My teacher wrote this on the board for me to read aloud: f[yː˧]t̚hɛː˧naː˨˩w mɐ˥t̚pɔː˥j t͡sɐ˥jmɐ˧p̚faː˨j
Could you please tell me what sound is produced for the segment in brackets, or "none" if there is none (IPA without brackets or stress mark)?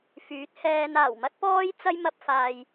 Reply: yː˨˥